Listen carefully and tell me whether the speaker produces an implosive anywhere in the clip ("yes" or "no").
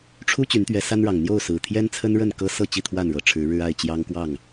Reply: no